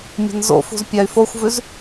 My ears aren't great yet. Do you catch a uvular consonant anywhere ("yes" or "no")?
no